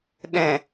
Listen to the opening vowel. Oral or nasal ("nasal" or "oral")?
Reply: nasal